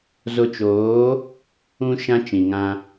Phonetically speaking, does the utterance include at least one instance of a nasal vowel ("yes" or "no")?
yes